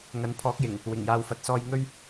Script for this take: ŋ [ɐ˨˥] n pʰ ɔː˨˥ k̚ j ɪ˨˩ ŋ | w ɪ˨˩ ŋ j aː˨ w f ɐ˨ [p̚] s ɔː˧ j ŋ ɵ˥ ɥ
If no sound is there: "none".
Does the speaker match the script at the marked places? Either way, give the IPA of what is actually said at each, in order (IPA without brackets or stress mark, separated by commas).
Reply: ɐ˨˥, t̚